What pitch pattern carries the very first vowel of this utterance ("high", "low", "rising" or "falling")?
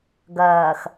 low